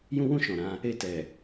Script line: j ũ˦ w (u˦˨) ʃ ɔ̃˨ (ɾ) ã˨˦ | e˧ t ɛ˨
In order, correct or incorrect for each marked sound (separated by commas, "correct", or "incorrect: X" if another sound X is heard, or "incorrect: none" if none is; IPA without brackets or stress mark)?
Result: incorrect: ũ˦˨, correct